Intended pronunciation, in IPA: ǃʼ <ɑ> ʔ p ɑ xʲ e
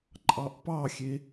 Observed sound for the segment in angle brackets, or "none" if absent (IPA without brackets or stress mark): ɑ